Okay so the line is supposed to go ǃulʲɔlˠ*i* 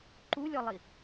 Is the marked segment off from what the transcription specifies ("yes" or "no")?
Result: no